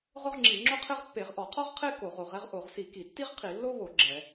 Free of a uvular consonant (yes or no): no